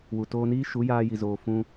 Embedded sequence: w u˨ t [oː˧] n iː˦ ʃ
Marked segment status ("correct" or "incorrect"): correct